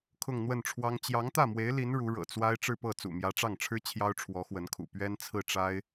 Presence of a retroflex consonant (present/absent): present